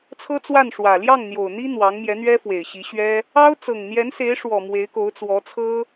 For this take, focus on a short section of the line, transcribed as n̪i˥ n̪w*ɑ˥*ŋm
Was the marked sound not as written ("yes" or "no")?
yes